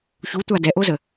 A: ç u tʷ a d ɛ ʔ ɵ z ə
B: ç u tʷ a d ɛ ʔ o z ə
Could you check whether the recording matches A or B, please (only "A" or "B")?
B